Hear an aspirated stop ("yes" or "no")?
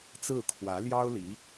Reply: yes